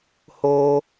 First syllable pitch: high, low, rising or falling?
high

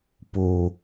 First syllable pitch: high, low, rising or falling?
low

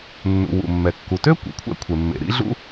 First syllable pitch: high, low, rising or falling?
low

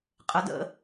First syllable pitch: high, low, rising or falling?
rising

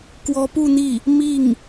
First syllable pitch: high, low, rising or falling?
rising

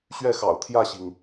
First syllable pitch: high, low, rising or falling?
falling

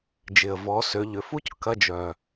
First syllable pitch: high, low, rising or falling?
low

